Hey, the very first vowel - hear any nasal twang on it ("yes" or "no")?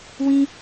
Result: yes